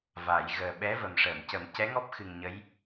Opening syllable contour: low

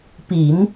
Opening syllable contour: low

